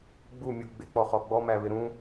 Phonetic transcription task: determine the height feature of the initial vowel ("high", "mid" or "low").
high